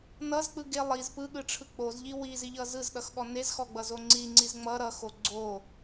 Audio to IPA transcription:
n ʌ z k͡p ɯ ɡ e lˠ i z p ɯ ɠ ɯ ʈ͡ʂʰ ɯ k͡p o z ʎ i w i z i ʎ ʌ z ɯ z ɗ ʌ x ɠ ɔ n e z x ɔ ɡ͡b ʌ z o ŋ͡ǀ i ŋ͡ǀ i z ŋ͡m ʌ ɾ ʌ x o ɡ͡ǀ o

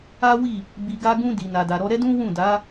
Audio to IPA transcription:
a˦ w i˦˨ | b i˧ ɡ a˦ ɡ ũ˦ d i˧ n a˧ d a˧ ɾ ɔ˦ ɾ ɛ˦ d ũ˦ w ũ˦˨ d a˨˦

